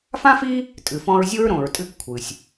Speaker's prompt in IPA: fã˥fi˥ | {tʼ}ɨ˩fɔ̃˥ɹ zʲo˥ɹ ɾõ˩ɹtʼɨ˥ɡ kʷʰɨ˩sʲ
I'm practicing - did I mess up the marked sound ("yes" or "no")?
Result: no